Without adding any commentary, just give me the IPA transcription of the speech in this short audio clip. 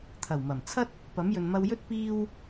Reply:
t̪ʰ ɐ˨˩ w m ɐ˨˩ m t͡sʰ ɐ˥ t̚ | p ɐ˨˥ m j ɵ˨ n m ɐ˧ w j ɵ˥ t̚ p iː˧ w

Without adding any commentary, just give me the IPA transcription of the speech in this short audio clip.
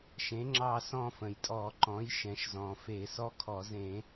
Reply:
ʃ ẽ˩˥ ŋ͡ǁ ɑ˦˨ s ɔ̃˦˨ f ə̃˩ j tʼ ɔ˧˩˧ ǃ ɔ̃˩˥ j ʃ ɛ̃˩ ʃ z ɔ̃˩ f e˧˩˧ s ɔ˦˥ kʰ ɔ˧˩˧ z ẽ˧˩˧

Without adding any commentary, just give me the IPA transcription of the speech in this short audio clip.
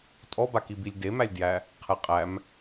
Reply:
tʼ ɔ b a k i b i lʲ d e m æ lʲ d j æ | qʰ ɛ qʼ æ m

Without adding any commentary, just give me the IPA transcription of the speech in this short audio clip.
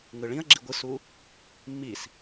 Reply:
ŋ ɯ ɭ ĩ ɐ̯ ɡ͡ǁ i ɡʷ ɯ s u | mː i s

